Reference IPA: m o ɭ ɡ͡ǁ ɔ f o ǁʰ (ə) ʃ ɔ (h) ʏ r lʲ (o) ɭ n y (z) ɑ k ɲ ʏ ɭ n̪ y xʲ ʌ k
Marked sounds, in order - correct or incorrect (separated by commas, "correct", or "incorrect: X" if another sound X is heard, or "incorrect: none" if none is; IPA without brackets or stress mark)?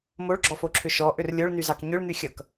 incorrect: ʏ, incorrect: ʔ, correct, correct